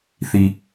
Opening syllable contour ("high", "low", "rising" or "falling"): low